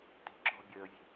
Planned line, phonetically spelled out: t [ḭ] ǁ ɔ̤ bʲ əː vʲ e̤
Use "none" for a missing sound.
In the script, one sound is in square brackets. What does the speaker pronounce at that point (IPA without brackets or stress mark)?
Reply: i̤